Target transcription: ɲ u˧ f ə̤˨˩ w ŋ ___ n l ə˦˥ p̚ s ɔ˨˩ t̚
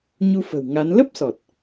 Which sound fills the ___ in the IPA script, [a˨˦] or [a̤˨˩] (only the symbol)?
a˨˦